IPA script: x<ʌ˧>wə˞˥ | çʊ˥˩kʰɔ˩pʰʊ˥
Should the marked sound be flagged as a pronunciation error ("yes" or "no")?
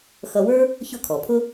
no